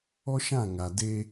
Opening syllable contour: high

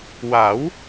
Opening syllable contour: rising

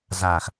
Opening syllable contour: low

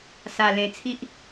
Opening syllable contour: low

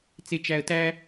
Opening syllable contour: low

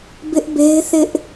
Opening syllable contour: high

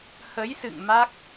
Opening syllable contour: rising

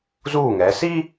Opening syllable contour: falling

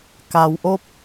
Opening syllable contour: low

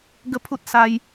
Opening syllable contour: high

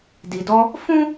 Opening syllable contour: low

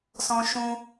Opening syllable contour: high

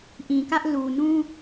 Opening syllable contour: low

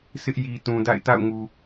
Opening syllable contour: high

